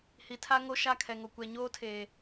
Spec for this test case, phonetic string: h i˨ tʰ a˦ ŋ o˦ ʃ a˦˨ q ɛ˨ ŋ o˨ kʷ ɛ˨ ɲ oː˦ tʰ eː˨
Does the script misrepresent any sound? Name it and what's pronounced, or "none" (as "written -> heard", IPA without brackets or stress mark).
q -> kʰ